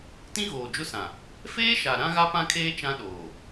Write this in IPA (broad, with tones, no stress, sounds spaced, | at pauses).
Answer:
t ĩ˦ ɣ oː˨ d͡ʒ ʊ˦ s ã˨ | f eː˦ ʃ a˨ ɾ ã˦ ɣ a˦ p ã˦ kʰ eː˦ t͡ʃ ã˦ ɗ oː˨